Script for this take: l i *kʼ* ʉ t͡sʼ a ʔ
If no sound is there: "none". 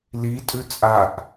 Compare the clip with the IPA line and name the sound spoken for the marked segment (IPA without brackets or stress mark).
tʼ